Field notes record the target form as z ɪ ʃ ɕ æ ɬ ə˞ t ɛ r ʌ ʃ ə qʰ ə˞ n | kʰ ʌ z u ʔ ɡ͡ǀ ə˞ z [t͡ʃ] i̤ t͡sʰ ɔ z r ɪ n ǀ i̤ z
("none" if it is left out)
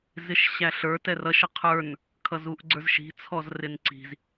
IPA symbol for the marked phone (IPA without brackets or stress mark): ʃ